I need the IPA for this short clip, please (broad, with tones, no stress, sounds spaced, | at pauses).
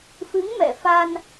f ɨ˨˦ ŋ m ɛ̰˧˨ f a˧ n